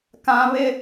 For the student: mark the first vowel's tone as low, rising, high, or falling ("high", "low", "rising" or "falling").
high